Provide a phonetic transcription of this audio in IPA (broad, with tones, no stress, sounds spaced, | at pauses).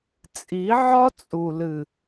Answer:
t͡sʼ i˨˦ ʕ ɒ˦ t͡sʼ u˨ l ɨ˨